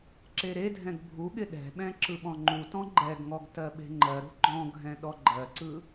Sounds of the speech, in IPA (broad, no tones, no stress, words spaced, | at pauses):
ǁeɾedʱɛ̃ɡ bʱuɠɪ ɗɛ̤ɓɛ̃ ǁɯɓɔ̃ŋ͡ǃutɔ̃ ɡ͡ǃɛɡŋɔɡ tɜɓe̤ŋ͡ǃɜɾṳ ɡ͡ǃɔ̃ɡʱɛ̃ ɗɔɡ͡ǃɜǀɯ